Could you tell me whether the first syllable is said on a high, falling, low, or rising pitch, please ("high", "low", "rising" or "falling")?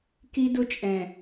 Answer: high